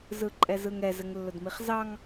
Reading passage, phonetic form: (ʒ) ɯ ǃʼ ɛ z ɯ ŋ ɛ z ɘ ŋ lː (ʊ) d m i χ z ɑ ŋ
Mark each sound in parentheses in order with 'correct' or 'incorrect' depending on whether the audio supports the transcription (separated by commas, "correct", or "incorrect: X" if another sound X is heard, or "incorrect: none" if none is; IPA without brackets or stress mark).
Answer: incorrect: z, correct